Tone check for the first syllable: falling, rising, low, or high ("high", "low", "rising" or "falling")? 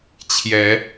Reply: rising